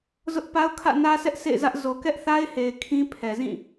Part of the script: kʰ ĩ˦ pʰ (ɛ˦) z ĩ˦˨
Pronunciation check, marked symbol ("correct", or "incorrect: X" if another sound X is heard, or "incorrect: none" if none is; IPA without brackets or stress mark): incorrect: ɛ˨